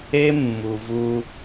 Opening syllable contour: high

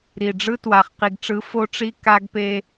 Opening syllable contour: low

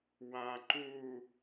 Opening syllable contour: low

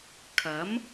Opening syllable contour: rising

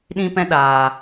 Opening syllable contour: high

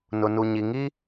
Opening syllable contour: low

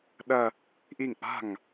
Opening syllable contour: falling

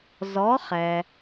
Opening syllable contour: rising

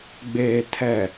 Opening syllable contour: low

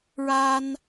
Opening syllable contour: high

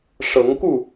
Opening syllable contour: rising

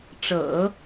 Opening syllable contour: low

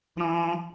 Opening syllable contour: high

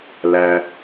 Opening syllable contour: low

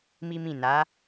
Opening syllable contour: high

